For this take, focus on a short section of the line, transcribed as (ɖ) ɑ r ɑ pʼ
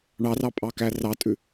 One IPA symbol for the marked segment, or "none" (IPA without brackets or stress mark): ɳ